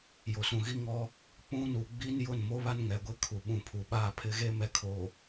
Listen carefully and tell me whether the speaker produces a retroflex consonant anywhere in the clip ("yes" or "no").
no